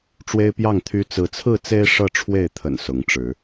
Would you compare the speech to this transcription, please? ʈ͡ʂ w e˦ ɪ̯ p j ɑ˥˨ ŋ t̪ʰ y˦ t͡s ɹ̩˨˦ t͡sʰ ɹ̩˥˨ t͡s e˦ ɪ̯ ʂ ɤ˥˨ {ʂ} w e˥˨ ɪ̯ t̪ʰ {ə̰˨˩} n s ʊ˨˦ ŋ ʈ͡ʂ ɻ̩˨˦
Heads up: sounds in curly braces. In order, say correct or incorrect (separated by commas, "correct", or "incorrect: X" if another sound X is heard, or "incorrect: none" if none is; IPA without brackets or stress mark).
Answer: incorrect: ʈ͡ʂʰ, correct